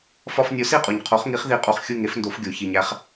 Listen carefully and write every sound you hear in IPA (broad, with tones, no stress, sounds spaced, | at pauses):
f ɒ˧ f nʲ o˩˥ s i˥˩ qʼ u˩ ɲ qʰ o˩˥ χ ŋ i˩˥ χ ð i˩˥ qʼ u˩ χ xʲ u˥˩ ŋ e˩˥ f n d o˩˥ f ɡʲ o˩ ç i˩ ɲ æ˧ χ